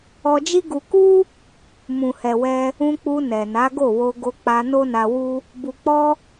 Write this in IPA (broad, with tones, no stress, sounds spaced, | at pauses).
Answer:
ɔ˧ d͡ʒ i˦ ɡ u˧ k u˦ | m ũ˨ h ɛ˨ w ɛ˧ | ũ˧ k͡p u˧ n ɛ˨ n a˨˦ ɡ o˦˨ w o˧ ɡ o˧ k͡p a˧ n o˦ n a˧ w u˦ | b u˨ k͡p ɔ˧